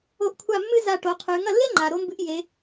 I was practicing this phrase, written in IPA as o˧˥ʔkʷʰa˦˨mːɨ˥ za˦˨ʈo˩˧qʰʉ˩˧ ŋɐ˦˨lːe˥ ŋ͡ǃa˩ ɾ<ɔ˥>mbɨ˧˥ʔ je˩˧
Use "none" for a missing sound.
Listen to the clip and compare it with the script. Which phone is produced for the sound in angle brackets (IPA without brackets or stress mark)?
o˥